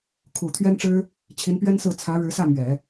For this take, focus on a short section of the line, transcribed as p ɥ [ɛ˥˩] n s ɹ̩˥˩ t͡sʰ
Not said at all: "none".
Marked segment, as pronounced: ɛ˥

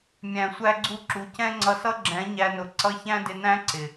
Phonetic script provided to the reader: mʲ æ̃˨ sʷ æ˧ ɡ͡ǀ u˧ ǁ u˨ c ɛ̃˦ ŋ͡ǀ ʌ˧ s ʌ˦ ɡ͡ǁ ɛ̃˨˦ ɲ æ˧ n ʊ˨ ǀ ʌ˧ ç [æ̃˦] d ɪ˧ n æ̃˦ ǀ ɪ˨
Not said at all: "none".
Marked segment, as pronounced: æ̃˦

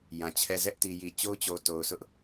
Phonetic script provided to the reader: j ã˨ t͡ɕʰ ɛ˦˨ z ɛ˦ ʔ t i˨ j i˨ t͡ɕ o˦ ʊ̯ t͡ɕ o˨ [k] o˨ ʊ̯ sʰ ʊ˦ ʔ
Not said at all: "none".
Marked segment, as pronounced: t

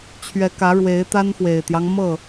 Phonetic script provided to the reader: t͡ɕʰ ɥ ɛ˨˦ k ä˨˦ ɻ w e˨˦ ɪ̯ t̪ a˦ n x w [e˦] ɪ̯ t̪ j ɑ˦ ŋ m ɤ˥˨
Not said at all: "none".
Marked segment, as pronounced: e˨˩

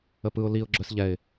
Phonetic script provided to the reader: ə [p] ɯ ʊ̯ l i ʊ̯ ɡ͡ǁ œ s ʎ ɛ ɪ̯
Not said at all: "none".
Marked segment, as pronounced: p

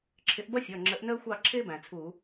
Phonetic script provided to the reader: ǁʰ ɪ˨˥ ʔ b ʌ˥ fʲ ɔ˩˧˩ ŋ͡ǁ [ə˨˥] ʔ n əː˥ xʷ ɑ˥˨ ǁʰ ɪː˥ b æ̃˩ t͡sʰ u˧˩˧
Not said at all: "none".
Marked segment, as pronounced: ə˨˥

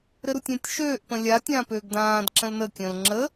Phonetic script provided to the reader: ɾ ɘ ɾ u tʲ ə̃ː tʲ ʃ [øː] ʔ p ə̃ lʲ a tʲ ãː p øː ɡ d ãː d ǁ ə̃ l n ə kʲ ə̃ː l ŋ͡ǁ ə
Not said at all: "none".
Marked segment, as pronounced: øː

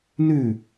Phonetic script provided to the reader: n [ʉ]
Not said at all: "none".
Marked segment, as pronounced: ʉ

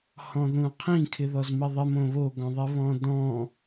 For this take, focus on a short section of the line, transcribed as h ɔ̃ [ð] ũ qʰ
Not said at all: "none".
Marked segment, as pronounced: ð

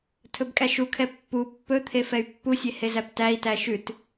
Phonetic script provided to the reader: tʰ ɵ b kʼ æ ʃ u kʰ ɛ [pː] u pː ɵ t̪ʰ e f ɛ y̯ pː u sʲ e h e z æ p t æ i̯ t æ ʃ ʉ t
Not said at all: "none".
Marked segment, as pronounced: pː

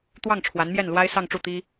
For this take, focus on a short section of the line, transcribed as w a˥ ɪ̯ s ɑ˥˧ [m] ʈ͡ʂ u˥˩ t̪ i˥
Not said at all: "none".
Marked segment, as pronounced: ŋ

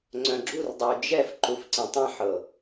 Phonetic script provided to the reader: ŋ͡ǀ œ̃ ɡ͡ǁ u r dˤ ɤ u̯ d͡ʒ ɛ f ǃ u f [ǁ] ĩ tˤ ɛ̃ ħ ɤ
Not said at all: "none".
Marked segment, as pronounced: ǀ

